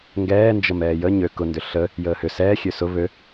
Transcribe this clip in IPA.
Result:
ŋ ɡ ɛː n d͡ʒ ə m ɛː j ə ɲ ø k ʊ n d ʏ ɬ ə | j əː h ʏ s ɛː xʲ ø s ʊ β ø

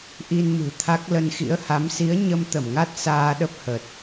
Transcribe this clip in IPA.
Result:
ʔ i˧ n m ɨ̤˨˩ t̪ʰ a˦˥ k̚ l ə˧ n x ḭ˧˥ ə̯ h a˨˦ m s i˨˦ ə̯ ɲ ə˧ m t̪ ə˧˩ m ŋ a˦˥ t̚ s aː˧ ɗ ə˦˥ p̚ h ə˨˩ t̚

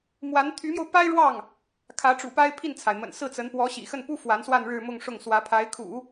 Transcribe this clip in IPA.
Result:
m w a˧˥ n t̪ʰ y˧˥ m j o˧ ʊ̯ p a˥ ɪ̯ ɻ w ɑ˥˩ ŋ | kʰ ä˧˥ ʈ͡ʂ ṵ˨˩ p a˥ ɪ̯ pʰ i˥˩ n t͡sʰ a˩ ɪ̯ m ə̰˨˩ n s ɹ̩˥˩ t͡s ə˧˥ n p w ɔ˧˥ ɕ ḭ˨˩ x ə˥˩ n p u˥ f w a˧˥ n s w a˥˧ n ɻ ɻ̩˥˧ m ʊ˥˧ ŋ ʂ ʊ˥˩ ŋ s w ä˧˥ pʰ a˧˥ ɪ̯ kʰ ṵ˨˩˦

